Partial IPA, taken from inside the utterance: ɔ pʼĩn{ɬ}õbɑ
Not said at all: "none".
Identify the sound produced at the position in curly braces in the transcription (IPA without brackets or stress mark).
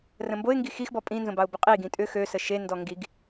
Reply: z